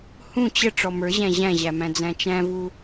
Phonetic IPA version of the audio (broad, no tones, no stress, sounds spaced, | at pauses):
h ũ t͡ɕ ə ʈ͡ʂ ɔ m ə˞ ʑ æ̃ ʑ æ̃ ʑ æ m æ̃ d͡z æ̃ t͡ʃ æ̃ v u